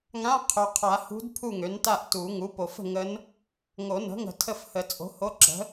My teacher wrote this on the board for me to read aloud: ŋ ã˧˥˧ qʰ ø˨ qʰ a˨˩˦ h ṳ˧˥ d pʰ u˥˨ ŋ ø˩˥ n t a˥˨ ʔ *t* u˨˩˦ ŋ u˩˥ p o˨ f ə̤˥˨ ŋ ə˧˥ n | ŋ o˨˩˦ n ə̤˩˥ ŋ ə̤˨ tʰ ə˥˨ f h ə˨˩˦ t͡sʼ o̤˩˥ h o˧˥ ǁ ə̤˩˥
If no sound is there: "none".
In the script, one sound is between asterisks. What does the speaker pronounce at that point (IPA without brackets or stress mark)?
t